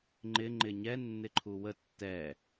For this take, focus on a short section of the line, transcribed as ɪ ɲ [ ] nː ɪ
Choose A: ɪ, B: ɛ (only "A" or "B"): B